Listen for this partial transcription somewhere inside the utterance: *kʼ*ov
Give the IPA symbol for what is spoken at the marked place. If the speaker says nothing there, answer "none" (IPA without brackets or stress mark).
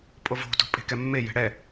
pʼ